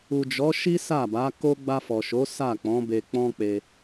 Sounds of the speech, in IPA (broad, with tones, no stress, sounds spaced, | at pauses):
u˨ d͡ʒ ɔ˨˦ ʃ i˦ s a˦˨ b a˨˦ k o˦ ɡ͡b a˧ f ɔ˨ ʃ o˨˦ s a˦˨ k͡p ɔ̃˨˦ b e˧ k͡p ɔ̃˦ k͡p e˧